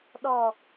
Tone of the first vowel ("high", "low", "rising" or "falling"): low